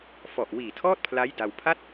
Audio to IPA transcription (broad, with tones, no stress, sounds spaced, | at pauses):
f ɔ˨˩ ʔ w iː˨˩ tʰ ɔː˥˩ t̚ pʰ l a˦˥ j d a˧ w pʰ a˥˩ t̚